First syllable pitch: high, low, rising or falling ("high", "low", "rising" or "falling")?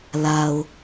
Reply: low